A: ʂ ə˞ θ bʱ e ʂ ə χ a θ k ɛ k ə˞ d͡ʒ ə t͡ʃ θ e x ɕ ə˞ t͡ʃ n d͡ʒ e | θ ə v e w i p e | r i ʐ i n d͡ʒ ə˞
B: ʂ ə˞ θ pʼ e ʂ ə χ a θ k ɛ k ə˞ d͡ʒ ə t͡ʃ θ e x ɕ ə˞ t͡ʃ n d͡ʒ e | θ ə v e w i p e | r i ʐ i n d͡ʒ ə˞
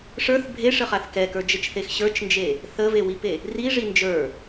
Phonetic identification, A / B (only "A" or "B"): A